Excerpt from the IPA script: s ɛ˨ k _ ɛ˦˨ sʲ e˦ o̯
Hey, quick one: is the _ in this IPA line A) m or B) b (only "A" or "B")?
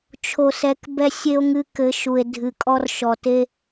B